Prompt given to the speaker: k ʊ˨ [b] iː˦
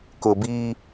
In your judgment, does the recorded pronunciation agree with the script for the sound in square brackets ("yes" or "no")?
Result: yes